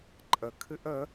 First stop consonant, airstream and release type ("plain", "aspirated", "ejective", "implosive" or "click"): click